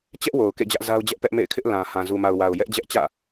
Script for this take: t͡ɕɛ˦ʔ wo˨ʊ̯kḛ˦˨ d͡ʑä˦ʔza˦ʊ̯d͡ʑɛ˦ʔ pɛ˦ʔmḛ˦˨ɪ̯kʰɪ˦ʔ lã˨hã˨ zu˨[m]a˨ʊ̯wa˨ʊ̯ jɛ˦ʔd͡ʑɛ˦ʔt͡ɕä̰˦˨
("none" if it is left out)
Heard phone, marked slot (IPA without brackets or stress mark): m